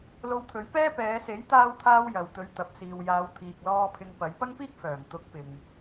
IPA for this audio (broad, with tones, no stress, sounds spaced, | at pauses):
l o˧ w t̪ʰ ɵ˨˥ ɥ p ɛː˥ p ɛː˨˧ s e˨˥ j t̪ aː˧ w t̪ʰ aː˧ w j ɐ˨ w t̪ ɵ˨˥ ɥ t̪ ɐ˨ p̚ s iː˨ w j aː˨˧ w t̪ʰ iː˨ k̚ l ɔː˧ pʰ ɪ˧ ŋ p ɐ˨˥ j p ɐ˥ ŋ p iː˥ k̚ f œː˨˩ ŋ t̪ ʊ˨˥ k̚ p ɪ˨ ŋ